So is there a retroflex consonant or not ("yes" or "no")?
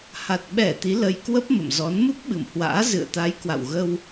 no